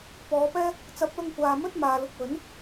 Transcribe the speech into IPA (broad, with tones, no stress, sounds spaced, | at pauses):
p ɔː˨˧ p ɛː˥ | t͡s ɐ˨˥ p̚ l ʊ˧ ŋ kʷ aː˨ m ɵ˥ t̚ m aː˨ l ʊ˧ k̚ w ɵ˨˥ n